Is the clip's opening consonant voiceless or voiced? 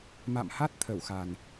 voiced